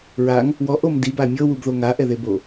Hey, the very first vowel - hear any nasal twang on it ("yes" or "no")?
no